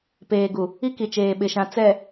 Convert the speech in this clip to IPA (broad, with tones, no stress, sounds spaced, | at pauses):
p eː˨ ɡ u˨ | i˦ k i˨ t͡ʃ eː˨ ɓ ɪ˨ ʃ ã˨ t͡s ɛ˨